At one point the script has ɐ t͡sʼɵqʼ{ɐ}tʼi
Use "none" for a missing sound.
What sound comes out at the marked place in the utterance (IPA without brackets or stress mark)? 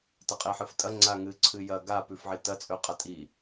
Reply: ɐ